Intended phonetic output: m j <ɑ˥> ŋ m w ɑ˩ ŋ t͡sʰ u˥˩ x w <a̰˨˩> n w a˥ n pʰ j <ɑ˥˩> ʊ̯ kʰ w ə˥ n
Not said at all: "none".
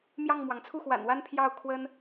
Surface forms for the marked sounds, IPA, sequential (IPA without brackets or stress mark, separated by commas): ɑ˥˩, a̰˨˩, ɑ˥˩